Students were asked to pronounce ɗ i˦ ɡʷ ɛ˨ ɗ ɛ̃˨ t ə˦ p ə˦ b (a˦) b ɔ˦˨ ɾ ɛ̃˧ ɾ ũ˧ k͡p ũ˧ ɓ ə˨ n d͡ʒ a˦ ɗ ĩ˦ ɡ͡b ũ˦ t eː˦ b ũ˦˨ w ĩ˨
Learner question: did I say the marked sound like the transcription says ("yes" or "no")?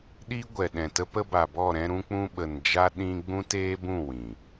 no